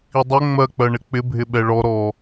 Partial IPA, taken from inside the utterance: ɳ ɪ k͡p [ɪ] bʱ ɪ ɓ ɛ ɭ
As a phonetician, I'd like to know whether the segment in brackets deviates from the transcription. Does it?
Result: no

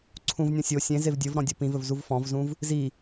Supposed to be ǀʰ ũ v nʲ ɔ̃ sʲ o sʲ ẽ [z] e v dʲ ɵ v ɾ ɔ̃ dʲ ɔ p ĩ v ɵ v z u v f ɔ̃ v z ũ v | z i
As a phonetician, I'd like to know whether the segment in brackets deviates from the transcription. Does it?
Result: no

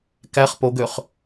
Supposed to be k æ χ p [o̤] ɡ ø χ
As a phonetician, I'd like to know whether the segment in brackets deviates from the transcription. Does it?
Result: yes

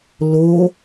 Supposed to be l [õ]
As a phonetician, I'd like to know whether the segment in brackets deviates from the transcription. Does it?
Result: yes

